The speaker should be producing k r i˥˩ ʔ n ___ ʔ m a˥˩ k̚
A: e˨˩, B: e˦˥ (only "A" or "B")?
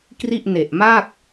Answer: A